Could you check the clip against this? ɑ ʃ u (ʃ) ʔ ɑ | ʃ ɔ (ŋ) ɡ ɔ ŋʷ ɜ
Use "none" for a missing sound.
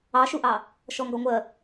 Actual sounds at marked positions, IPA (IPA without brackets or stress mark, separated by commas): none, ŋ